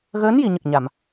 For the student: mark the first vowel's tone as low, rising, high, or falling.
rising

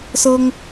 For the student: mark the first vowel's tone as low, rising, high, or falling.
high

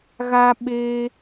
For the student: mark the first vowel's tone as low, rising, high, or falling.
high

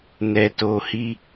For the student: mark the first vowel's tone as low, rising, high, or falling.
low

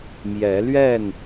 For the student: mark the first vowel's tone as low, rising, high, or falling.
rising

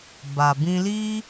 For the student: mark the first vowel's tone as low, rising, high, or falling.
low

